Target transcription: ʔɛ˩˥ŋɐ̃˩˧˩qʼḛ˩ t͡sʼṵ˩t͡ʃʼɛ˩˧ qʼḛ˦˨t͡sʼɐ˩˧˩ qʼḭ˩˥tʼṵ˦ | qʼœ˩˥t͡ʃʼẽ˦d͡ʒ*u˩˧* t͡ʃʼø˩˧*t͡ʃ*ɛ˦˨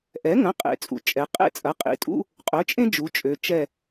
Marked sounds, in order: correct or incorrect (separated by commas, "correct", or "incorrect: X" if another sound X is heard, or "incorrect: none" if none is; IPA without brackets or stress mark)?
correct, correct